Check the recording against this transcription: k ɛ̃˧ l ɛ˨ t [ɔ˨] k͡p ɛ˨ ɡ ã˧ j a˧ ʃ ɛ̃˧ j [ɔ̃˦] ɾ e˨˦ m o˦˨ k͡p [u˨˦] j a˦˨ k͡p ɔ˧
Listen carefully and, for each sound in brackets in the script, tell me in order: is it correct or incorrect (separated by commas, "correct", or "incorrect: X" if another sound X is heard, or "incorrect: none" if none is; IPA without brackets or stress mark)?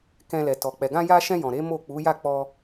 correct, incorrect: ɔ̃˨, correct